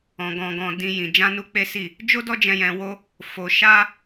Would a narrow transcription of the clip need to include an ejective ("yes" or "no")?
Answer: no